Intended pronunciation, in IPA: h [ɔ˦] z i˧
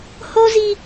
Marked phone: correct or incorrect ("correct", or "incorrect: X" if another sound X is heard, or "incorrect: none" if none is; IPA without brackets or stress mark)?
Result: incorrect: o˦